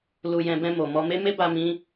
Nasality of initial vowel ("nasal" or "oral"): oral